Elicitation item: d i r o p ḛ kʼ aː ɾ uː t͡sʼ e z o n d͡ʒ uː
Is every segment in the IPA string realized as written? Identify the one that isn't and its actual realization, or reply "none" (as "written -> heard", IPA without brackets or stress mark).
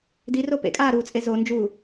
none